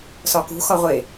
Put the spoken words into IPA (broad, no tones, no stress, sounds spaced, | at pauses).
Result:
s ɒ k ṳ x ɒ ʁʷ e